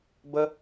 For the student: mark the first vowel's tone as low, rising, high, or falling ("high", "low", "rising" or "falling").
high